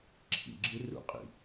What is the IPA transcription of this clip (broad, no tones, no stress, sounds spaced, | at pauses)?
ǁʰ ḭ ɡ͡ǁ ɨ r ṵ qʼ ḭ